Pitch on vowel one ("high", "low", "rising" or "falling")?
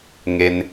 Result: low